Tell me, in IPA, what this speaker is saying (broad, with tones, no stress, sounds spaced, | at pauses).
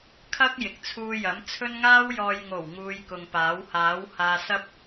kʰ ɐ˥ k̚ j ɪ˨ k̚ t͡sʰ uː˧ j ɐ˨˥ m t͡sʰ ɵ˥ n ŋ aː˥ w j ɔː˨ j ŋ o˨˩ w ŋ uː˧ j k ʊ˨ ŋ p aː˨˥ w h aː˨˥ w h aː˧ s ɐ˥ p̚